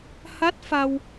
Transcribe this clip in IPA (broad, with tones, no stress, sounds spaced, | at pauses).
h a˦˥ t̚ f a˧ w